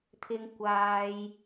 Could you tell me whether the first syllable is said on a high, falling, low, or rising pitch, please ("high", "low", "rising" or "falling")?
low